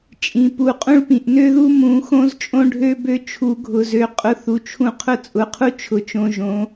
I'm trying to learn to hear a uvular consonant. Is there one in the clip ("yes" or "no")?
yes